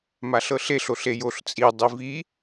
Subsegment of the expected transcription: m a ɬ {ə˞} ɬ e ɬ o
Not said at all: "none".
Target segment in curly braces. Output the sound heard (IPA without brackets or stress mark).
ɤ